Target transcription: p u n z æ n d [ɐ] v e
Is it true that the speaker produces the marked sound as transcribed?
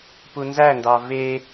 no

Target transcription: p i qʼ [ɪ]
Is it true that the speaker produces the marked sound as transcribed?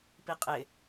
yes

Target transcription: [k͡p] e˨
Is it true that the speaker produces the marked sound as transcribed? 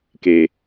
no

